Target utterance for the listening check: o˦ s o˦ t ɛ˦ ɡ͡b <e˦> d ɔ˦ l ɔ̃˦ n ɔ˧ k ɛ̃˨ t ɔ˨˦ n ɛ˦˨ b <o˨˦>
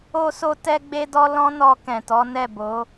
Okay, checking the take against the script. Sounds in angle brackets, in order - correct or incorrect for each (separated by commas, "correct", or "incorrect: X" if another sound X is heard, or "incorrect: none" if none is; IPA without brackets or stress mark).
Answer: correct, correct